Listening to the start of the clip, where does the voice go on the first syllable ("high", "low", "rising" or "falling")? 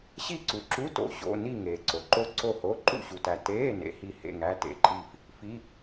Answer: falling